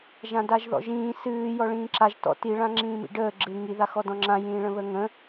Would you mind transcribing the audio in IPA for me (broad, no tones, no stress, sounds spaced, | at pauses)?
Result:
ʒ ã d a ʒ ð ɔ̰ ʒ ĩː s ɨː j ɔ ɭ ĩː ǁ a ʒ t ɔ̰ t i ɭ ã ŋ͡ǁ ĩː m ḭ ɖ əː ɡ͡ǁ ɨ ŋ i ð a x ɔ d ɔ̃ ŋ͡ǁ ã j ĩː ɭ ə̃ β ə ŋ ə̃